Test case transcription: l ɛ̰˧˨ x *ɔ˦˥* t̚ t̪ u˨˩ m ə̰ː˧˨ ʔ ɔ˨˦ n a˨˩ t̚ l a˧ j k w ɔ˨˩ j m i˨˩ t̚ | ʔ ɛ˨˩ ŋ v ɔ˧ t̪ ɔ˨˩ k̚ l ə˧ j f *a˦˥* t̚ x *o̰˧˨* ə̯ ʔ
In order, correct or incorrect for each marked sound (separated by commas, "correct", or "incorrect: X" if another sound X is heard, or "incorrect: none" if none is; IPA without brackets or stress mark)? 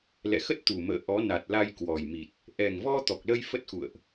incorrect: ə˦˥, incorrect: ə˦˥, incorrect: ṵ˧˨